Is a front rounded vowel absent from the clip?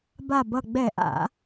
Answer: yes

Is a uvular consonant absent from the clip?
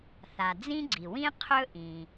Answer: no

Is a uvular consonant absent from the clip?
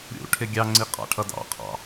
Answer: no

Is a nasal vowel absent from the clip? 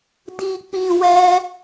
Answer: no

